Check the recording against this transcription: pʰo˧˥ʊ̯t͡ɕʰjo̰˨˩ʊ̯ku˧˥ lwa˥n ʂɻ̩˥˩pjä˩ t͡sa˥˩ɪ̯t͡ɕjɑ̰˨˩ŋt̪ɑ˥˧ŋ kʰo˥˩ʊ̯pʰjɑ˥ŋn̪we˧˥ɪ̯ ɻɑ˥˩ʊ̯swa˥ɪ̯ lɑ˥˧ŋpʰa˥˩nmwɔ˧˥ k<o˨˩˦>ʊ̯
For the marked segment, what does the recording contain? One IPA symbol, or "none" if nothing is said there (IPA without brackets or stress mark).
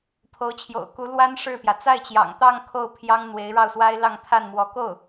o˥˩